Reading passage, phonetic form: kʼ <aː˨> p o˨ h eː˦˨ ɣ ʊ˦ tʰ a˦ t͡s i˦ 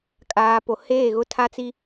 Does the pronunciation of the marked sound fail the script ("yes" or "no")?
no